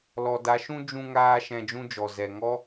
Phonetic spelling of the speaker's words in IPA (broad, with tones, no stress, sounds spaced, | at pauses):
l ɔ˨ d a˨˦ ʃ ũ˦ d͡ʒ ũ˦ ŋ aː˦ ʃ ɛ̃˧ d͡ʒ ũ˦ d͡ʒ ɔ˨ z ɛ˨ ŋ ɔ˦